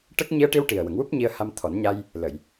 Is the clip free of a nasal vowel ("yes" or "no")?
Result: yes